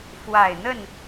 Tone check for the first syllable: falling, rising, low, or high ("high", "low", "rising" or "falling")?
low